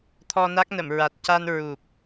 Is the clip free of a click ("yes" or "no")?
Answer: yes